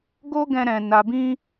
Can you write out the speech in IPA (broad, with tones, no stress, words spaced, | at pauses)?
ɡo˦ɡɛ̃˧ɾɛ̃˨ na˨bĩ˧